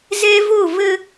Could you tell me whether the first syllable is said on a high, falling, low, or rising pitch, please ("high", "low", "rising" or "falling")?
high